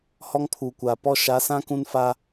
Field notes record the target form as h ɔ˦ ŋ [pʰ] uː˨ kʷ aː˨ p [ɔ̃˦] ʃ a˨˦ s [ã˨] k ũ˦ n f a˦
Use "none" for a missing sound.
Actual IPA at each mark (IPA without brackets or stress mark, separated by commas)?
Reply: pʰ, ɔ˦, ã˦